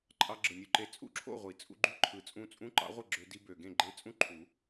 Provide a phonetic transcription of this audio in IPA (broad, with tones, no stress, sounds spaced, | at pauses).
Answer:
ǃʼ ɑ˧ ɡ͡ǁ ɯ˨˩ nʲ u˧ ǃ e˧ t͡sʼ ṵ˥˨ ǁʰ o̰˥˨ ʁʷ i˨˩ t͡sʼ ṵ˧ ɡ͡ǃ y˧˥ ǃʰ ɯ˨˩ t͡sʼ ũ˧ t͡sʼ ũ˧˥ ǃ ɑ̰˧˥ ʁʷ ɯ˥˨ ɡ͡ǁ ø˧ d i˧ b ø˨˩ ɡ ẽ˥˨ ɡ͡ǃ e˧˥ t͡sʼ ũ˥˨ ǃʰ u˨˩˦